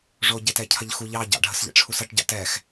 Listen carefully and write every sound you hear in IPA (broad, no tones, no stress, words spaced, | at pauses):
ʐoɟetɛ cʰɐʎxu ʎɑ ɟɑ̰ɖʱəsʎɛ̰ ʈ͡ʂʰusɐʈɟɑ̰ tɛx